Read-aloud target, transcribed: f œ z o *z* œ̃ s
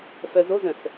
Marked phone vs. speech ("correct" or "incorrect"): correct